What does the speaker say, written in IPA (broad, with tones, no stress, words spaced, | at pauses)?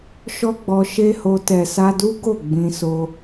ʃɔ˦ɡ͡bɔ˧ʃe˦ho˧ tɛ˨sa˧du˦ ɡo˦˨ ɡ͡bĩ˧so˧